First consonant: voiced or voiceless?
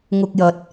voiced